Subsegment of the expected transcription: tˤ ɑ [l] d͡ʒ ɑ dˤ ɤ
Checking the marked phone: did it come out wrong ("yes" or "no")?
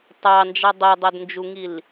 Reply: yes